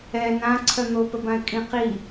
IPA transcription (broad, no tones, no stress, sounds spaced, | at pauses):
ɛ n ã ǀʰ œ n̪ o p ə b ã ɪ̯ kʼ ĩ q i